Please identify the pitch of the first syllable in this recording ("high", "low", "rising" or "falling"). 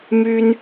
high